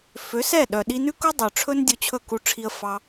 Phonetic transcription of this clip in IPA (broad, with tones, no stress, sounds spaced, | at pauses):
f ø˨˦ s ɛ˦˨ ɗ œ˨ ɗ i˧ n ʉ˦ k u˦ dˤ œ˨ ʈ͡ʂʰ ɵ˦ n dʲ ɵ˧ t͡ɕʰ ɵ˦˨ k u˧ ʈ͡ʂʰ i˧ ə̯ f ɑ˧